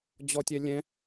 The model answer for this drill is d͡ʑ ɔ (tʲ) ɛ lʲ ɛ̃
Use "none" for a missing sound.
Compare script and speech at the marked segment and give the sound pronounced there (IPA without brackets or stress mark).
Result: tʲ